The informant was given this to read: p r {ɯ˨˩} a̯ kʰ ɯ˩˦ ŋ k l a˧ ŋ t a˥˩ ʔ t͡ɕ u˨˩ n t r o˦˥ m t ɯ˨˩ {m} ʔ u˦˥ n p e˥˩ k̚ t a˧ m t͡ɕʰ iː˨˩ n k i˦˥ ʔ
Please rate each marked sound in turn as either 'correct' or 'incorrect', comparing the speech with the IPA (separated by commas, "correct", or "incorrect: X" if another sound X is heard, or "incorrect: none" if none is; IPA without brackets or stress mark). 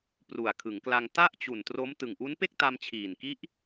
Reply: incorrect: u˨˩, incorrect: ŋ